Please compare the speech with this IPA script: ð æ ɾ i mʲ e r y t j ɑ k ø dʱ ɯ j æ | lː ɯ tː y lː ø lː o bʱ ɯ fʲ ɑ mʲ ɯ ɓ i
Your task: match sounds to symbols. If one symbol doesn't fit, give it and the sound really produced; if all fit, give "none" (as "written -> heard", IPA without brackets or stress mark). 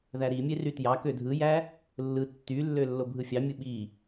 none